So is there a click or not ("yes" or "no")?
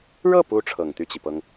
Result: no